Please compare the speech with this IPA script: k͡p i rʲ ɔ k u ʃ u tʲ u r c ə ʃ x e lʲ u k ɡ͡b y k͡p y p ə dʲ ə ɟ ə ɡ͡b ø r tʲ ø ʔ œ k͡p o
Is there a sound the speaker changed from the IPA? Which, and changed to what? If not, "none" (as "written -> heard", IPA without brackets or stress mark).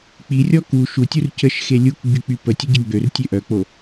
dʲ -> tʲ